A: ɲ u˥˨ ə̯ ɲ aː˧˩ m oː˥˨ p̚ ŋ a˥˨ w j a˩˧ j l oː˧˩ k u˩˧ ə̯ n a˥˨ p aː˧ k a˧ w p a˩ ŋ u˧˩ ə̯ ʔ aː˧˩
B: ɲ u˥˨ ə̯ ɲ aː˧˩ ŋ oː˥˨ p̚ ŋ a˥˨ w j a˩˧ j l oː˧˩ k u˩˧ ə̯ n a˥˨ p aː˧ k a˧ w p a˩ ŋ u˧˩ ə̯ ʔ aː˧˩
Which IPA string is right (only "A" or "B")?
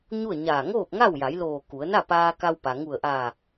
B